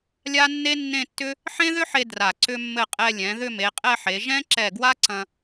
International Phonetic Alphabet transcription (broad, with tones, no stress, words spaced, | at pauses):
lʲa˥nːe˥nːẽ˥˧tːʏ˥ | ħẽ˥ðʏ˥ħe˧ dra˧˩ǀʏ˥mːɘ˥˧ qʼɛ˧lʲɛ̃˩˧ ðʏ˥˧me˩˧qʼɛ˥˧ħe˩˧ ʒɛ̃˥ ǁɛ˧˩ɡwa˥ǀɐ̃˧